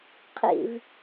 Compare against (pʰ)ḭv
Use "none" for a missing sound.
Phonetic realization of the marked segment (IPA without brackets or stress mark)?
qʰ